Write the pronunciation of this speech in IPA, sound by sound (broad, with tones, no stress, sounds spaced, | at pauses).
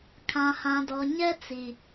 kʰ ã˨ h ã˨ d ɔ˨ ɲ ɛ˦ t͡s i˨